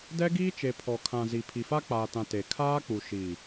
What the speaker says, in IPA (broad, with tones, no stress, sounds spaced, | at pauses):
d ɛ˦ ɡ iː˦ t͡ʃ e˨ pʰ ɔ˨ kʰ ã˨ z i˨ pʰ i˨ f a˦ k͡p aː˨ t ã˨ t e˨ kʰ aː˦ k͡p u˨ ʃ iː˨